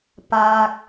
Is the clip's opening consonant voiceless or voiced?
voiceless